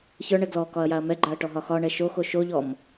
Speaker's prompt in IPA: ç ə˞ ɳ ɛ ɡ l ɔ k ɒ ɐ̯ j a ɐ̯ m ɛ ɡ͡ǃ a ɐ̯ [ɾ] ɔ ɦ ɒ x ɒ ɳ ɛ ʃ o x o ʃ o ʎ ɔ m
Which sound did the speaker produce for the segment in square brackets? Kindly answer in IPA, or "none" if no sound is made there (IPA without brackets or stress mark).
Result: ʈ